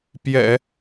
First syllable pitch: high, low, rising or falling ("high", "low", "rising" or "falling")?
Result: low